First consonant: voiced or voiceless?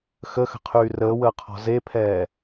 voiceless